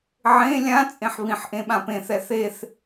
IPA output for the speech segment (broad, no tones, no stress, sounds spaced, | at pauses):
ʕ ẽ lʲ ã t͡sʼ ẽ ħ β ĩ ħ ʔ ẽ ɓ ã p ẽ θ ɛ θ e θ